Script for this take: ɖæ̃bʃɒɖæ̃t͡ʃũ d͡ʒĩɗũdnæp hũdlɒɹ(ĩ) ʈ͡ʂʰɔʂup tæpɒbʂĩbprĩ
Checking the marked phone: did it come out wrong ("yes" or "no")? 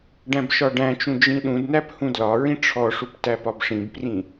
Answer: no